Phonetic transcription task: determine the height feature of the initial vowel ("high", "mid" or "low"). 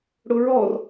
high